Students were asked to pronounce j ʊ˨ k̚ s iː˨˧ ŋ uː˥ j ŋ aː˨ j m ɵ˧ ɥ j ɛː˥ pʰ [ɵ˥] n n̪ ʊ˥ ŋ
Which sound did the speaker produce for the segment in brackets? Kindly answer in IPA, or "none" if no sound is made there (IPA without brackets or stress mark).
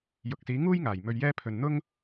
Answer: ɵ˧